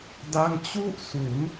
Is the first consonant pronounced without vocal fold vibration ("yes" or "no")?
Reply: no